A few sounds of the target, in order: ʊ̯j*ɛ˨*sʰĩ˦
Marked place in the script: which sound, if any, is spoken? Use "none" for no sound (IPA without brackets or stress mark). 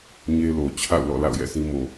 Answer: ɛ̰˦˨